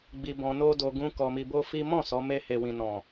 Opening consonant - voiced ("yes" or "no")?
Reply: yes